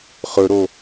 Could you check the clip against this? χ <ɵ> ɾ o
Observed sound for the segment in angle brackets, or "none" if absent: ɵ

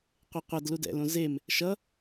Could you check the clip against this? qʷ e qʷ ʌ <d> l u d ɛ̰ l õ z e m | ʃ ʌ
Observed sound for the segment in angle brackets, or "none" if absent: d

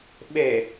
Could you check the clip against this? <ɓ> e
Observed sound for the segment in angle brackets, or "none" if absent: ɓ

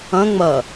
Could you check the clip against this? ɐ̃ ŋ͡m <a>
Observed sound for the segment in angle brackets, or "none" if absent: ɐ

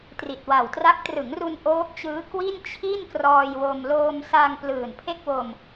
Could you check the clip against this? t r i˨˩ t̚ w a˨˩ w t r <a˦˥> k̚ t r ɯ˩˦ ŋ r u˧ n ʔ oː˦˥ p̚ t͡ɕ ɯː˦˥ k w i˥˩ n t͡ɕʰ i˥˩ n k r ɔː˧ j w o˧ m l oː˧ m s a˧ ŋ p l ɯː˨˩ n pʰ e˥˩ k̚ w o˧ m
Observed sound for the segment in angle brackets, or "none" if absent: a˦˥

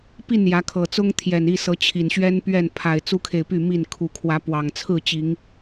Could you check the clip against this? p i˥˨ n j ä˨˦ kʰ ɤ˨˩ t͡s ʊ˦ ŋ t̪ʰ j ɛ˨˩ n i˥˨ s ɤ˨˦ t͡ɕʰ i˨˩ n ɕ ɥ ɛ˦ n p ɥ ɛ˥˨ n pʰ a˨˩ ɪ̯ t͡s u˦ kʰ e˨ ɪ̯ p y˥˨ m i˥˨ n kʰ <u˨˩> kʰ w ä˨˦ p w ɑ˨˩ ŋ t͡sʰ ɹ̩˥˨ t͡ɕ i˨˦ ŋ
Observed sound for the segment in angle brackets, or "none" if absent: u˨˩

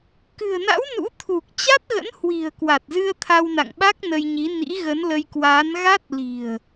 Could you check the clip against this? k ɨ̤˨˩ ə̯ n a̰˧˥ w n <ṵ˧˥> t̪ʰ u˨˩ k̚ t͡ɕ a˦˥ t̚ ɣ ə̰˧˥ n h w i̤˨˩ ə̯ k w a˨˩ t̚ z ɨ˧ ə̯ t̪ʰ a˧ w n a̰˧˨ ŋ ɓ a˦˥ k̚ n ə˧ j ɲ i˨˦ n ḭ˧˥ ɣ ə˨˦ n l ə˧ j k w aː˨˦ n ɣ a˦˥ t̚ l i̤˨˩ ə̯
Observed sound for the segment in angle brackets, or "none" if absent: ṵ˧˥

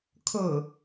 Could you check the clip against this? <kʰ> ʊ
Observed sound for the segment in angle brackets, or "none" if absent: kʰ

